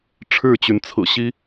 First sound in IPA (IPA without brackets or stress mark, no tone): ʈ͡ʂʰ